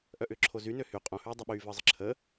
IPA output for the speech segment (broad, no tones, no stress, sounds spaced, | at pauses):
ʔ œ ʔ ʏː ǁʰ o z y n ø h y qʼ õ h yː dˤ ɐ ɓ yː v əː zˤ ə ǁʰ əː